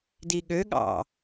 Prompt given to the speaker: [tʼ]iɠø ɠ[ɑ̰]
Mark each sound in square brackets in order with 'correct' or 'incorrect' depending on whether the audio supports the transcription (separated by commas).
incorrect, correct